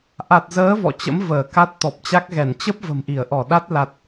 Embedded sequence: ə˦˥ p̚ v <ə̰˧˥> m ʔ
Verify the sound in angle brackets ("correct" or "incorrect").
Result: incorrect